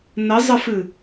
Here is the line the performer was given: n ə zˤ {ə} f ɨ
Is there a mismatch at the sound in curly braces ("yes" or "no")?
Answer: no